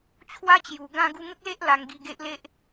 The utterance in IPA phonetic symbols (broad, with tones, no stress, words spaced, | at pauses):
t͡ɕʰwa˦t͡ɕju˨˩ ɡã˧ ɡu˧ŋə˦k̚le˦ʔ la˧ŋɡi˧ɡe˦ʔle˦ʔ